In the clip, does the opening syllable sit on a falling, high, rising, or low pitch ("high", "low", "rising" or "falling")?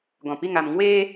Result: low